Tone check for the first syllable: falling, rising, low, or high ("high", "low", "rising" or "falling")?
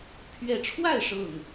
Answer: rising